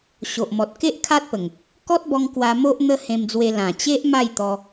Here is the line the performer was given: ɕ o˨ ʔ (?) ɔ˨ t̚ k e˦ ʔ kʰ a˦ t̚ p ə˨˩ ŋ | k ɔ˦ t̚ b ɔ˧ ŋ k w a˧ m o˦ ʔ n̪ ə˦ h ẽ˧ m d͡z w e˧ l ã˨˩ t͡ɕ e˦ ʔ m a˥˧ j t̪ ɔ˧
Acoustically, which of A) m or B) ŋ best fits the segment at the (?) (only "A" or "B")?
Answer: A